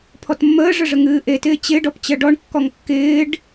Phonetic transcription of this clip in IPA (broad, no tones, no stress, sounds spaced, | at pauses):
pʰ ɔ t mː əː ʐ ə ʐ ə ŋ ɨː ʔ e t ɪː t͡ɕ ɪ ɖ ɔ p t͡ɕ ɜ ɖ ɔ ɳ kː ɔ ŋ kː ɪː ɖ